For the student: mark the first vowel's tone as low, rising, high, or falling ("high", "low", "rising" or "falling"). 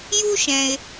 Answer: high